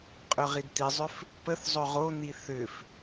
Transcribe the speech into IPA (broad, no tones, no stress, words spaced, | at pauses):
qʼɵʁidt̪izˤʏf | pəθ zˤɵʁon̪i θʏf